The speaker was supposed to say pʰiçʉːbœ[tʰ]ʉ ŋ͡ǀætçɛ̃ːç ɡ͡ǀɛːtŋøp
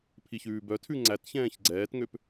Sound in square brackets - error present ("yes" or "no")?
no